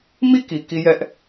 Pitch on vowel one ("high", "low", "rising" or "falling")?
falling